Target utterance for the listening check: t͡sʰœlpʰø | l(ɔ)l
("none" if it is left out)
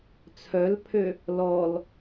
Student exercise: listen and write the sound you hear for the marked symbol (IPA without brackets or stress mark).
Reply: ɔ